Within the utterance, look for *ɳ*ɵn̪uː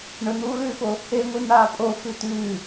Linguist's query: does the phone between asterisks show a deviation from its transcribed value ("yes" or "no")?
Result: no